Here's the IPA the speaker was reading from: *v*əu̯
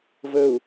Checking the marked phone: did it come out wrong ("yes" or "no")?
no